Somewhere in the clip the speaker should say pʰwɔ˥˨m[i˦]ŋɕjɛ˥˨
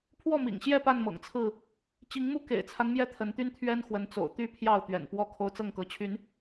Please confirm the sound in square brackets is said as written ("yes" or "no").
no